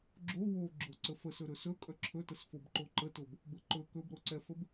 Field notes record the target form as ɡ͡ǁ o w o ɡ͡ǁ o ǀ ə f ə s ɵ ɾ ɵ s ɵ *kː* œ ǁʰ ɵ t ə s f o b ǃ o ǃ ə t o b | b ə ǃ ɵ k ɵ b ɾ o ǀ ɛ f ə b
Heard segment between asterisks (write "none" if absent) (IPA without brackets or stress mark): kʼ